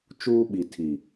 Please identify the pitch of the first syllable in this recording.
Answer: high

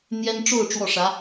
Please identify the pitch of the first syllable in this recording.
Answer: high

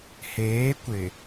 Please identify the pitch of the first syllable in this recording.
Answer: rising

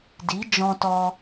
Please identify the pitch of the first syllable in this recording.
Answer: rising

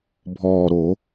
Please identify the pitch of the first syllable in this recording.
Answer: low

